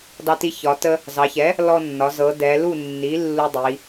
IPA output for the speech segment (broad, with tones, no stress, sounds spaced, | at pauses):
d ɑ˧ t i˧ ç ɒ˩˧ t ə˧ | z ɑ˩˧ ç ɛ˩˥ | l ɔ˧ nː ɒ˩˧ z ɤ˩˧ d ɛ˩˧ l u˥˨ nː i˩˥ lː u˧ dˤ i˩˧